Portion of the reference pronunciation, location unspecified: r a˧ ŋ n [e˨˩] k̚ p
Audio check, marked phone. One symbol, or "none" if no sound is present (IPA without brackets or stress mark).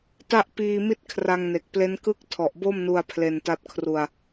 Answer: e˨˩